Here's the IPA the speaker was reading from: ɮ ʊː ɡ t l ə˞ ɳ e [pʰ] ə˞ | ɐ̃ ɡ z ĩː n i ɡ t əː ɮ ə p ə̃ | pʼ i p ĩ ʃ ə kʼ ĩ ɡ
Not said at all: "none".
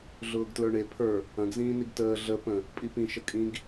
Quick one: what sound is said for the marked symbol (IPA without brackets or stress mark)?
pʰ